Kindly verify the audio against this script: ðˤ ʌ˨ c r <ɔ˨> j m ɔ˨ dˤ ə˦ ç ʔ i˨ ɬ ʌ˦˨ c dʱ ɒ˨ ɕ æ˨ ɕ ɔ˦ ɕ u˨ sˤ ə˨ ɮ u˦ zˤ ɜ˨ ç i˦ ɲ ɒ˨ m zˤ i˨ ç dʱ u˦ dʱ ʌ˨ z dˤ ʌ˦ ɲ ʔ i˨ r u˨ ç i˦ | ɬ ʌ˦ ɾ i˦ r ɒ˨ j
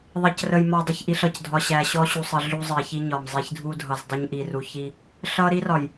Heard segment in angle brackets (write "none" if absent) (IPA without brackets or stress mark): ə˨